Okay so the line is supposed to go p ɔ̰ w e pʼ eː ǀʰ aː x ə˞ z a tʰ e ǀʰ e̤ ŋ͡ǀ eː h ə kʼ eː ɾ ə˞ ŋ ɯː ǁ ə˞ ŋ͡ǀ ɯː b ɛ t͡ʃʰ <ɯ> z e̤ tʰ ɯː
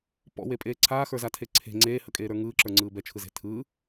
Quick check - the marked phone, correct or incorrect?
correct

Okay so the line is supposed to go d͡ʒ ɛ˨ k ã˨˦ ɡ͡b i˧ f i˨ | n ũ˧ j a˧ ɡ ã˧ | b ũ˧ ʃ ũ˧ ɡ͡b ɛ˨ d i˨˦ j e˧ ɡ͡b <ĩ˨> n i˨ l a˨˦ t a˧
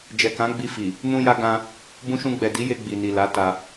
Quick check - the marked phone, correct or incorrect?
incorrect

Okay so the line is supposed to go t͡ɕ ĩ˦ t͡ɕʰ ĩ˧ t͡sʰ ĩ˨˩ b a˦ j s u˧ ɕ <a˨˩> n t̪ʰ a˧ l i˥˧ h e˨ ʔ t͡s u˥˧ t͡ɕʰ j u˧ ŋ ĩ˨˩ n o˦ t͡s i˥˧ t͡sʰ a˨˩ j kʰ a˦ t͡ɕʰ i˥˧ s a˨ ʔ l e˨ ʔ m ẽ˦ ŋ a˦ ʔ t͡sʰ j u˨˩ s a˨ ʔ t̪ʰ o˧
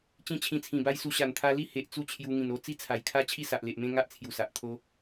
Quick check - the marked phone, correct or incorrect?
correct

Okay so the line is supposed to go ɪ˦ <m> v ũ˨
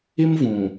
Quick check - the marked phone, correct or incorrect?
correct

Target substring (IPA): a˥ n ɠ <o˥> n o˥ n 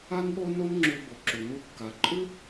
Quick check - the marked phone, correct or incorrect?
correct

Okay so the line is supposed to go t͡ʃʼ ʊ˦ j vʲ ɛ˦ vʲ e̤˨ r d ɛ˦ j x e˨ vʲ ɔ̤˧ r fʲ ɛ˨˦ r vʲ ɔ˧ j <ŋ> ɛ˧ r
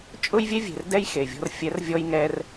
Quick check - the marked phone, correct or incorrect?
correct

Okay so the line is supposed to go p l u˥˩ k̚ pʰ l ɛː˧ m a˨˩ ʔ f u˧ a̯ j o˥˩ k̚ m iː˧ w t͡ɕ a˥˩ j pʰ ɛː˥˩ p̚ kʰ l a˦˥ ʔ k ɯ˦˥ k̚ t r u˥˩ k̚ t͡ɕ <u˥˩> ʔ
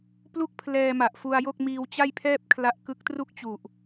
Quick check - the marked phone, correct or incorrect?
incorrect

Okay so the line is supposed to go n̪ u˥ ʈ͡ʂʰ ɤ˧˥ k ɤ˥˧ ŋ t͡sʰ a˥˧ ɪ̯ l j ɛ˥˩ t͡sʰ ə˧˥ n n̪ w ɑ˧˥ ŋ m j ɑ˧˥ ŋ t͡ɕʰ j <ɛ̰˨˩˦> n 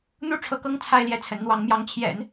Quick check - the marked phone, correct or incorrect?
correct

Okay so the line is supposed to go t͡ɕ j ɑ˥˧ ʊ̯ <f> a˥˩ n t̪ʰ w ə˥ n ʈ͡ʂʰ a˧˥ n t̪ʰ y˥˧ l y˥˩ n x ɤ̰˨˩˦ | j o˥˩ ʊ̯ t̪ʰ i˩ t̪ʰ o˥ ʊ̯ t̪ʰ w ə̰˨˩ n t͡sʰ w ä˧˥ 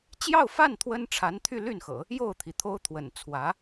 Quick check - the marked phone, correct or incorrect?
correct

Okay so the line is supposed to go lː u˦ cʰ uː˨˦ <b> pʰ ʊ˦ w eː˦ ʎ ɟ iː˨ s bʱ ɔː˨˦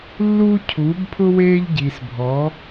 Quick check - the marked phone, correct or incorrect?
correct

